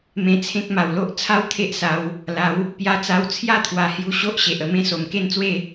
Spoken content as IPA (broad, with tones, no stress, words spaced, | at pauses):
mẽ˧t͡sʰẽ˦k̚ ma˨˩wlo˦ʔ t͡sʰa˦w t̪ʰe˦ʔsa˨˦w | la˨˦w | pja˧t͡sa˧w t͡sʰja˦t̪ʰwa˨˩ hju˧ ɕo˦ʔɕe˨ʔ ə˧mẽ˦ so˨˩mke˦nt͡swe˥˧